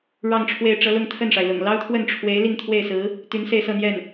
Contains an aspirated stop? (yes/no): yes